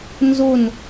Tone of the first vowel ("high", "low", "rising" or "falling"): falling